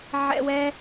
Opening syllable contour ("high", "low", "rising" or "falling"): high